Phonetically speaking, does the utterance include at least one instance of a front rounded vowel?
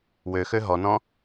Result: yes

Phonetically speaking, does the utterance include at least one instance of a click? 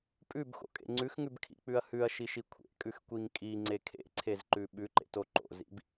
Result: yes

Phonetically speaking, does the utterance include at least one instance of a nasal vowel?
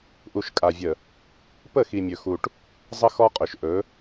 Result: no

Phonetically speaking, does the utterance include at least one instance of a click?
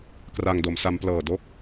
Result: no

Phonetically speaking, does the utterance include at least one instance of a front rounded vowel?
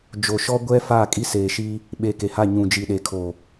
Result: no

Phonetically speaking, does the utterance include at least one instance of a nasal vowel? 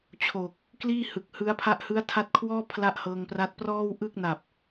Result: no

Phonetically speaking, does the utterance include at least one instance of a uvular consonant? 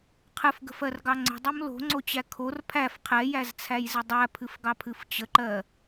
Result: yes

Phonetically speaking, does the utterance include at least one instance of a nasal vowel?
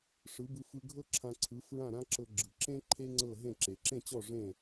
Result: yes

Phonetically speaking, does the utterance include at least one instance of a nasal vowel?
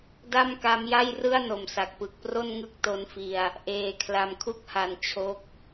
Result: no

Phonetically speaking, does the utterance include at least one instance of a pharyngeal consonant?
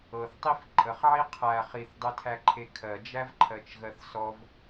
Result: yes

